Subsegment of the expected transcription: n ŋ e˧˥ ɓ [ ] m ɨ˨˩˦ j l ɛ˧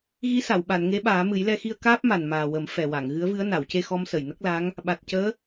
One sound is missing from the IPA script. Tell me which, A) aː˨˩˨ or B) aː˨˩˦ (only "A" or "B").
B